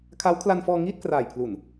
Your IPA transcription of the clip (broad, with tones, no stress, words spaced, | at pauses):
kʰa˦˥wkʰla˧nfɔː˧ ŋiː˥˩t̚kraː˨˩jpʰlu˨˩n